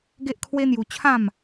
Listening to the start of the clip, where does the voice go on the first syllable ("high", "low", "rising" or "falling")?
high